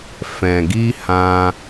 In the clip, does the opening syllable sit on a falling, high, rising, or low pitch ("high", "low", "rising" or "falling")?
low